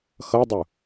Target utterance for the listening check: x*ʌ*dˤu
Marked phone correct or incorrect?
correct